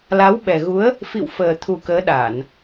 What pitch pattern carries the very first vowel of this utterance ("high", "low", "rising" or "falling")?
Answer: rising